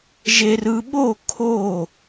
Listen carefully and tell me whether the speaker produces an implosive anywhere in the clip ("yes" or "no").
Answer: yes